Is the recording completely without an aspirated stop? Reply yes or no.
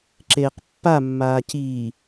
yes